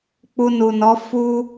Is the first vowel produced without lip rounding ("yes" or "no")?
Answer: no